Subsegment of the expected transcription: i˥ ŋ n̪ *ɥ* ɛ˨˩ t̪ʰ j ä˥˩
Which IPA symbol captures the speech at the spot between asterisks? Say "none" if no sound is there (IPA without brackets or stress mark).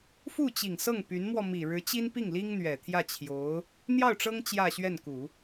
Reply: ɥ